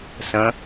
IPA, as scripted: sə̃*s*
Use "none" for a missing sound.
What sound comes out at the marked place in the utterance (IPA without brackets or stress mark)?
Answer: none